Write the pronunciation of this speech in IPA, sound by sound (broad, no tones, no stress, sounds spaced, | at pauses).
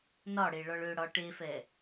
n ɒ ɽ e ɭ ɒ ɭ ø ɽ ɒ ʈ e f ɛ